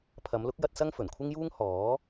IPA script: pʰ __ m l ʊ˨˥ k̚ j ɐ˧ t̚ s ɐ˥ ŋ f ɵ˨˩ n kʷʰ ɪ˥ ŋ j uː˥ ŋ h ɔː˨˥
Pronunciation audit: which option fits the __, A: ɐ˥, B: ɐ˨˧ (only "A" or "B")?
B